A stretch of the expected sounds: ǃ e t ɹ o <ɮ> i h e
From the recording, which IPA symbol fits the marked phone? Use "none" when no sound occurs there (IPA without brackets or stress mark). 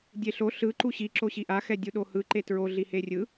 ɮ